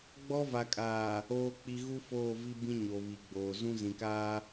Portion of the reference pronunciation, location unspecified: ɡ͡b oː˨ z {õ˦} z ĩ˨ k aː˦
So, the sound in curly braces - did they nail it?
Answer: no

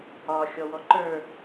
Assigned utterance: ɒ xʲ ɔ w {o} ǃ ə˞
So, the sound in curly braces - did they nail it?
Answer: no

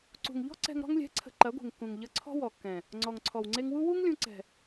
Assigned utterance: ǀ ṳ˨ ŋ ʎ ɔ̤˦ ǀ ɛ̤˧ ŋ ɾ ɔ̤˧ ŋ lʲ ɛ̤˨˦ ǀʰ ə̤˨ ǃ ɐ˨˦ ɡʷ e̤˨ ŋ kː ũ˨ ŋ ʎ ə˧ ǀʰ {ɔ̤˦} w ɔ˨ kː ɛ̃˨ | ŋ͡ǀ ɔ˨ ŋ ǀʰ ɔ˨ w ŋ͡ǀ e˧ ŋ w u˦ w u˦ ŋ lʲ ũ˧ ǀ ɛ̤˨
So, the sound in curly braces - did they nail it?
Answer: yes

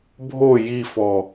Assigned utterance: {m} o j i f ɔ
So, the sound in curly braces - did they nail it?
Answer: no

